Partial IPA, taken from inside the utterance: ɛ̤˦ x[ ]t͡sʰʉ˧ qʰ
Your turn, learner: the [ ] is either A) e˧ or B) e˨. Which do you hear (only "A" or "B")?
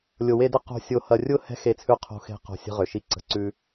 A